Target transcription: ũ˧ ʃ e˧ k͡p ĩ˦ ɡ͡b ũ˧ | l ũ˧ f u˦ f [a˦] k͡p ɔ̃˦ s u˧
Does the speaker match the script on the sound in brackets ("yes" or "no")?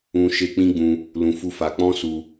no